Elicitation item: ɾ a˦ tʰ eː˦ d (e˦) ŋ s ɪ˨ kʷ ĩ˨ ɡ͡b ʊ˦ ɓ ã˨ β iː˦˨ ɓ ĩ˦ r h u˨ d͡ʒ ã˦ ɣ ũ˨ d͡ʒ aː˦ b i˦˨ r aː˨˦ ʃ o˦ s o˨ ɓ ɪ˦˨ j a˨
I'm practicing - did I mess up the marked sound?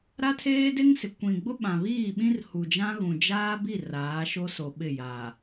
no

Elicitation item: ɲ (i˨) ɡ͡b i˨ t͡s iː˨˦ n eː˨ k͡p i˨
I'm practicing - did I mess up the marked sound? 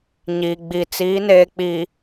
no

